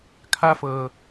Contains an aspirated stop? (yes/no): yes